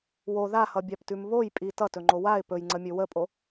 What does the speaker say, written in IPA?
w o ð a h ʌ bʲ a p t ʉ m β o j pʼ i t ʌ t ɵ ŋ͡ǃ o w a ɪ̯ p ɵ j ŋ͡ǀ ə mʲ ɵ w ə pʼ o

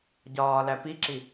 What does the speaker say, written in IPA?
ɟ ɒː l æ p i ǁ i

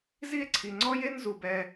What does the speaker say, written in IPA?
z i˥ e̯ ǀʰ i˩ ŋ͡ǀ ɔ˥ j e˥ n z u˩ b ɛ˨

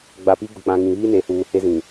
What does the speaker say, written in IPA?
ɡ͡b a˨ p i˦ ɡ ʊ˨ k͡p ã˨ ŋ ĩ˨ β iː˦ n e˨ h uː˨ h e˦ z ĩ˨

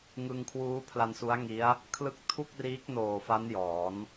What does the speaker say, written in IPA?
ŋ ɯ˧ ŋ kʰ w uː˦˥ pʰ l a˧ n s u˦˥ a̯ ŋ i˦˥ a̯ | kʰ l ɯ˦˥ k̚ tʰ u˥˩ k̚ r iː˦˥ k̚ n oː˨˩ f a˦˥ n j ɔː˩˦ n

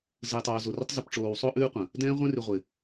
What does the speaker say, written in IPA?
z ɯ˨ j tˤ oː˨ z o˨ r ɪ˦ tˤ z ɨ˨ p ʈ͡ʂ oː˨ w sˤ o˦ ʔ ʉː˦ qʷ ə̃˨ | d ɛ̃ː˦ ʁʷ ɛ̃˦ r ʉ˨ ʁʷ ɪ˨

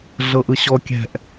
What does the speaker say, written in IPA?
ɮ ɤ ʔ ɯ ɕ ɔ kʲ ɛ̤ ʔ

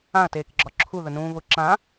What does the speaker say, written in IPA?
ã ɐ̯ t eː k ɡ͡ǁ ɒ ǁʰ u ð ə n ũː β ʊ ǁ ã

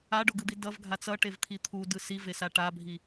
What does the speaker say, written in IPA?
a ɖ o ɡ ɯ d̪ i d ʌ v ɡʱ a t͡s ʌ ʈ e v t̪ʰ i t̪ʰ u d ɯ s i v e s a ʈ a bʱ i

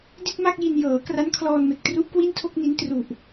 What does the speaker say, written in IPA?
d i˥˩ t̚ m a˥˩ k̚ j i˧ n j ɤː˩˦ k r a˦˥ n kʰ l ɔː˧ n m e˨˩ k̚ t r u˦˥ ʔ k w i˥˩ n tʰ o˥˩ k̚ n i˦˥ n t r u˨˩ ʔ

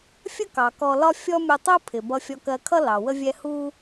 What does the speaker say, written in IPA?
fʲ ə˥ k ɑ˩ k ɔ˧ l ɒ˥ fʲ ɔ˥ mʲ u˧ tˤ u˥ pʰ ɪ˩ b ʌ˧ fʲ ɔ˧ k ɜ˧ kʰ ʌ˥ l ɑ˩ w ə˥ vʲ ɛ˥ h u˥

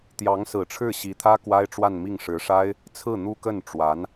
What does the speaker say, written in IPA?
t̪ j ɑ˧˥ ŋ s ɹ̩˨˩ ʈ͡ʂʰ ɻ̩˥˩ ɕ i˧˥ t̪ʰ ä˥ k w a˥ ɪ̯ ʈ͡ʂ w a˥˧ n m i˥˩ ŋ ʂ ɻ̩˧˥ ʂ a˥ ɪ̯ | t͡sʰ ɹ̩˥˩ n̪ u˥ k ə˥˩ n ʈ͡ʂ w a˧˥ n

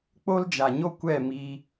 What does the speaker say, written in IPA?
k͡p o˦ l d͡ʒ a˨ ɲ o˦ kʷ ɛ˦˨ m iː˧

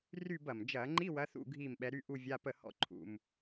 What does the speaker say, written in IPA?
r y˥˧ b ɐ˨˩ m d͡ʒ ɐː˧˩˧ ŋ͡ǃ i˧˥˧ w ɐː˨˦ θ ṵ˥˩ ɡʱ iː˥˩ m ɓ ɛ˨˦ ɾ y˧˥˧ ʔ u˥˧ vʲ a˧˥˧ p ə˥˩ h ɔ̰˥˧ ǃʰ ṵ˨˩ m

